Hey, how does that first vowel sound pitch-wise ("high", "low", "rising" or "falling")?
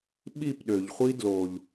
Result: falling